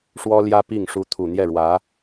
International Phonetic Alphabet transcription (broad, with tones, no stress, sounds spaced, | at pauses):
ʂ w ɔ˥ l j ä˥ p i˥˩ ŋ ʂ u˧˥ t̪ʰ u˨˩ n̪ j ɛ˥˩ ɻ w ä˧˥